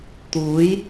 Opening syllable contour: rising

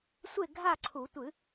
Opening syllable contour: falling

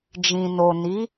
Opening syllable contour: low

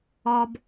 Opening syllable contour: high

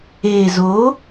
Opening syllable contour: low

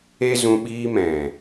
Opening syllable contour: high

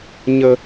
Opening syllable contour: low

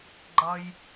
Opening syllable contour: low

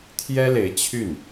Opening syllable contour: high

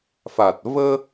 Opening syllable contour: low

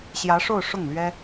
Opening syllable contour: rising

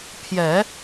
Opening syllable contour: low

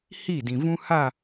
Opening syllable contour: falling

